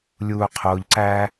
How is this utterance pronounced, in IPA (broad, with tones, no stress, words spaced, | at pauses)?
lʲuː˨qʰoː˨ʎǀæ˧